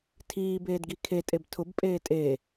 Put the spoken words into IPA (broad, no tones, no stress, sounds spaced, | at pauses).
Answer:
tʰ iː b eː d ɡ i kʰ e tʼ e b tʰ ʊ b pʼ eː tʼ e